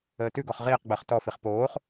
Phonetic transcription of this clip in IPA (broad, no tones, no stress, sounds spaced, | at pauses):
əː t ʉ ɡ ɔ χ ʁ iː q ɡ͡b əː χ t ɔ f i χ p oː χ